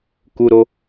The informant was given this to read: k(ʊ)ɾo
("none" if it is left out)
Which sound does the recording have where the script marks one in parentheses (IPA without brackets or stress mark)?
u